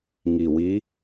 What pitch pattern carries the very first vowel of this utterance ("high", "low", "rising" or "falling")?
low